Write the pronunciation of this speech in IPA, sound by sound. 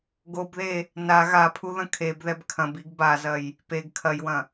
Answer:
ɡ o b ð e | n a ɣ a pʰ u ð ɐ̃ kʰ e b ð ɛ b kʰ ɐ̃ b i ɡ b a z ɐ j | p e ɡ kʰ ɐ j w ɐ̃

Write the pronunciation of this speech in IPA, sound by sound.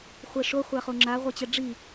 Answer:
χʷ ɛ ʂ o χʷ a χ o ŋ͡ǁ a ʁʷ e t͡ɕ ɛ ɖ͡ʐ i

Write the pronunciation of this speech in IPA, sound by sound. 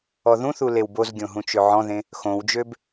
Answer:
ɔ ð ũ θ u l e w b o z ɡʲ õ ɦ ũ t͡ʃ ø ʕ ɔ̃ ð ẽ | x õ w d͡ʒ ø b

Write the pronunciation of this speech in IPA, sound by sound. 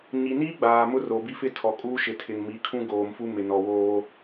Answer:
ɲ i˨ n i˦ ɡ͡b aː˨ m ʊ˦ r o˨ b i˦ f ɪ˦ tʰ ɔ˨ kʼ uː˦ ʃ ɪ˨ tʰ ɪ˨ ŋ m i˨˦ kʰ ũ˦ ɡ oː˨ m f u˦ m ɪ˨ n ɔ˨ w oː˦

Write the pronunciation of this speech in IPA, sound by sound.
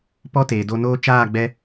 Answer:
p ɔ˦ t eː˨ d o˧ n oː˦ t͡ʃ aː˦˨ ɡ͡b ɛ˧

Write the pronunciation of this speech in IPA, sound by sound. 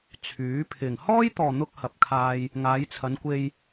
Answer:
t͡sʰ yː˨˥ pʰ ɪ˨ ŋ h ɔː˥ j t̪ ɔː˨ n̪ ʊ˧ k̚ h ɐ˨ p̚ kʰ aː˧ j | ŋ aː˨˧ j t͡sʰ ɐ˨˧ n kʷ e˧ j

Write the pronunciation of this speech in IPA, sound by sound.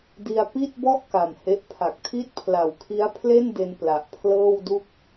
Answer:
d i˧ a̯ p i˥˩ t̚ b ɔ˥˩ ʔ k a˨˩ m h e˦˥ ʔ pʰ a˨˩ k̚ tʰ i˥˩ t̚ pʰ l a˨˩ w kʰ i˦˥ a̯ pʰ l e˥˩ n d e˧ n p l a˨˩ ʔ pʰ l ɤː˥˩ w d u˥˩ k̚

